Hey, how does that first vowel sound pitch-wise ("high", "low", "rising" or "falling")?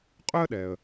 high